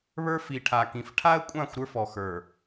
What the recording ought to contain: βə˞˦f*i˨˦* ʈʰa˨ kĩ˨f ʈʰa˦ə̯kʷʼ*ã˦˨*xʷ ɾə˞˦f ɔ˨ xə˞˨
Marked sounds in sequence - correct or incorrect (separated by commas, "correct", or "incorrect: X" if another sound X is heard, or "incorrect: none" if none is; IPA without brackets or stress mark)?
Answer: incorrect: i˨, correct